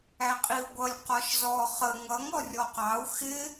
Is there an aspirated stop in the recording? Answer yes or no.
no